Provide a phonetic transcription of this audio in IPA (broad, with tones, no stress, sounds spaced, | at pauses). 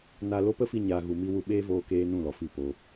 n a˨ l o˧ p ə˦ f i˧ ɲ a˨ ɣ u˨ m i˧ w u˧ ɓ eː˦ v oː˧ k eː˧ n ũ˦˨ l ɔ˨ f i˦˨ p o˧